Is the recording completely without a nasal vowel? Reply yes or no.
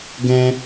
no